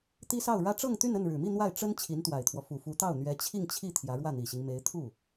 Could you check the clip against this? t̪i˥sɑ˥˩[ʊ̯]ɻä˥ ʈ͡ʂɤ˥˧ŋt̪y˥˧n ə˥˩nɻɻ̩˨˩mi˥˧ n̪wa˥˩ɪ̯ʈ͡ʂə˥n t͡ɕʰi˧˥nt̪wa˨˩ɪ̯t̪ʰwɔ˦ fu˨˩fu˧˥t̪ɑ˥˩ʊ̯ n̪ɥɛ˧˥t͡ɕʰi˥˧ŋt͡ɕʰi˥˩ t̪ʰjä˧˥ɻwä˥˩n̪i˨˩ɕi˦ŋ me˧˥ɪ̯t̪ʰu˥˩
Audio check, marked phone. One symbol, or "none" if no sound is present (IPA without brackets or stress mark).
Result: ʊ̯